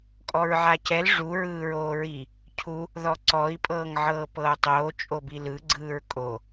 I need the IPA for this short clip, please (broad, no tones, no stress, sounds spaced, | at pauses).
kʼ ɔ ɹ ʕ a c ɛ l ʐ u ɹ ɯː ɹ oː ɹ i | cʰ u | ð ɔ ǀ ɔ i̯ pʼ ɤː ŋ ʕ ɤː p ɤː tˤ oː t͡ʃʼ o b i l ɯ ɡ͡ǀ ɯː ɹ kʼ o